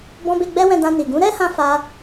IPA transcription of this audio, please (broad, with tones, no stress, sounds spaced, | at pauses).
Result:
b ɔ̃˧ b e˧ ɡ͡b ɛ˦ w ɛ̃˧ d ã˧ n i˨ ɡ ũ˨˦ ɾ ɛ˦ h ã˧ f a˧